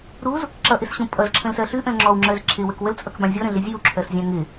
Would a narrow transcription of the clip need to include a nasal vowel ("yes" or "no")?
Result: yes